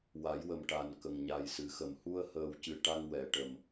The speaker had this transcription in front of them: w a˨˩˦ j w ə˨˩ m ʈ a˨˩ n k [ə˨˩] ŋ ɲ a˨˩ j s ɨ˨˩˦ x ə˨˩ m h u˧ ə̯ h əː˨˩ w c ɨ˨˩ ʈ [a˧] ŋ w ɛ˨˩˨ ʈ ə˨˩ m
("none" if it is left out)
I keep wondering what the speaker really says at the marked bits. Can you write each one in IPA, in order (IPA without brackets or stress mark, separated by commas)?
ə˨˩, a˧